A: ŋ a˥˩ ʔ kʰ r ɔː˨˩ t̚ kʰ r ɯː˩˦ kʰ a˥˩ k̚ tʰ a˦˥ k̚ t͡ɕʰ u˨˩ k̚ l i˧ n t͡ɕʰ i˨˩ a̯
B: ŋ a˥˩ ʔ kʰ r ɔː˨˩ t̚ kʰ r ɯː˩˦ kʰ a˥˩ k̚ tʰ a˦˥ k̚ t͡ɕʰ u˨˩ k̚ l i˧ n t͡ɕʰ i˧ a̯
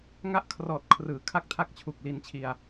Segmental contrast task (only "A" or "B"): B